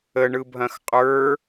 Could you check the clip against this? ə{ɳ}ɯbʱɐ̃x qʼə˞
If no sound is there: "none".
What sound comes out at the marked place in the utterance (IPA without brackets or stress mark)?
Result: ɳ